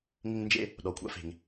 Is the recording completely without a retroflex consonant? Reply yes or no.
yes